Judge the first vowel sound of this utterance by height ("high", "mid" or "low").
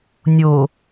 mid